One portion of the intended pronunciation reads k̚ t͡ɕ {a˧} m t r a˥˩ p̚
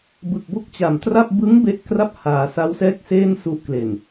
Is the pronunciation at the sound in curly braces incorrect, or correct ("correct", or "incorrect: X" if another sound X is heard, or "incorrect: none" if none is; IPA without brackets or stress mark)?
incorrect: a˨˩